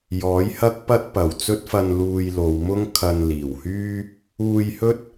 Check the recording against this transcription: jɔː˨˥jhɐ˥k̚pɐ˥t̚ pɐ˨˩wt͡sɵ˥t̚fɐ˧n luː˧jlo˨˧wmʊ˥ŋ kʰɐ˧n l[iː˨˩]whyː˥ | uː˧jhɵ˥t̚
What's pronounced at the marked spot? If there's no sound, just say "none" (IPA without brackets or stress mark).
iː˨˩